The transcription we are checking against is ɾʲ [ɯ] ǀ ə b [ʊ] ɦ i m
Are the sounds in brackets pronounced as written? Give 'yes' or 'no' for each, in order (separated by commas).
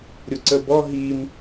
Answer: no, no